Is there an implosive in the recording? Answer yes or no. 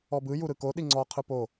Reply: yes